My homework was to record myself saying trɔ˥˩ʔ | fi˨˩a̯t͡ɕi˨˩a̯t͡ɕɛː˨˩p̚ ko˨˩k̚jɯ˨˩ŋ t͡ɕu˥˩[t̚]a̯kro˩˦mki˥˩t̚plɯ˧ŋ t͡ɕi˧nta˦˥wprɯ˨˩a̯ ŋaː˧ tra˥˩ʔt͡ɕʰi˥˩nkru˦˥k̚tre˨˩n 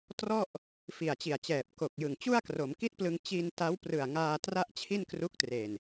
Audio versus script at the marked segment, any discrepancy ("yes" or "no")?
yes